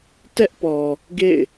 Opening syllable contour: high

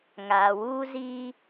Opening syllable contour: low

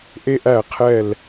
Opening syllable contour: high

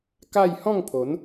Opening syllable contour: falling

